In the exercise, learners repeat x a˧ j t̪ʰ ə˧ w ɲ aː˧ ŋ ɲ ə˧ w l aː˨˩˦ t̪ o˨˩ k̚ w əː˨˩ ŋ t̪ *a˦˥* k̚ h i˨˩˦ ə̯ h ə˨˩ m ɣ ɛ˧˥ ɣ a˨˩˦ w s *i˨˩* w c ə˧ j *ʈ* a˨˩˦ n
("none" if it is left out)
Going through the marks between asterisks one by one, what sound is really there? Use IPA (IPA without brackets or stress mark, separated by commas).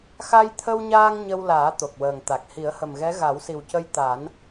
a˨˩, i˨˩, t̪